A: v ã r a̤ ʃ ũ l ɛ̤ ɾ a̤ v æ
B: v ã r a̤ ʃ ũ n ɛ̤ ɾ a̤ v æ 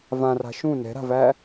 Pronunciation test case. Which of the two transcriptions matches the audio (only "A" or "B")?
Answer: B